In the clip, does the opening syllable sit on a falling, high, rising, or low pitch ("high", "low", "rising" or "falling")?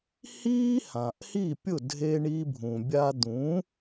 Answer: high